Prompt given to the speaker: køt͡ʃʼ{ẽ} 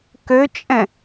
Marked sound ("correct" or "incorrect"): incorrect